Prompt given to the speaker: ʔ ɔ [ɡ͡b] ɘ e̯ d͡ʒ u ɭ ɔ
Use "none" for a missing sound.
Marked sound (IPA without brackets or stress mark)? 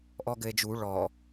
ɡ